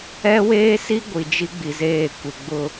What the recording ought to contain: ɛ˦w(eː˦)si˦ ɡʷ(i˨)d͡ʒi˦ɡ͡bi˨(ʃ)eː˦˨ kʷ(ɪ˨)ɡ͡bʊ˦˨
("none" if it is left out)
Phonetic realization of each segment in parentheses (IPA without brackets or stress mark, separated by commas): eː˦, i˨, z, ɪ˨